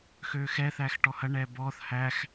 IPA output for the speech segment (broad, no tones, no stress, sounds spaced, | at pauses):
x øː x ɛ θ æː x ʈ ɔ h ɐ ɳ ɛː b ɔː θ h æ x